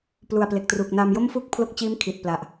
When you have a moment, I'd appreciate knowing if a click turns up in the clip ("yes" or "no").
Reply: no